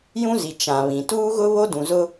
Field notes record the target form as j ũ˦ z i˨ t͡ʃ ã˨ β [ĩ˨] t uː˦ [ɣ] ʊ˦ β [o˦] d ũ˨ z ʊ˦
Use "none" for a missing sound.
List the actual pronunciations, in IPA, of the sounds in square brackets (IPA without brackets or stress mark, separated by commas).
ĩ˨, ɣ, o˦